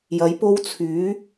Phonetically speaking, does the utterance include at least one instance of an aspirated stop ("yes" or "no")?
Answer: yes